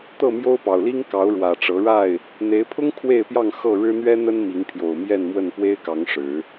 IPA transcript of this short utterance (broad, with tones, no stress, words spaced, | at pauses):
t̪ɤ˥˨mjo˦ʊ̯pɑ˨˩ʊ̯li˦ŋ kɑ˨˦ʊ̯ɻwä˨˩ʈ͡ʂɤ˨˦ɻa˥˨ɪ̯ | n̪e˨˦ɪ̯pʰʊ˦ŋ kʰwe˥˨ɪ̯pjɑ˥˨ŋ xɤ˥˨ ɻɻ̩˦n̪ɥɛ˦n̪ə˦n mi˨˦ŋpʰjo˨˩ʊ̯ mjɛ˥˨nmwə˥˨n pwe˦ɪ̯kɑ˨˦ŋ ʂɻ̩˨˦